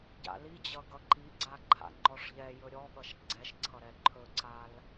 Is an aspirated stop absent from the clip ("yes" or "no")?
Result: no